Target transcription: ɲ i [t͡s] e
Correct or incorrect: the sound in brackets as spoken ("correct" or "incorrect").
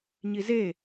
incorrect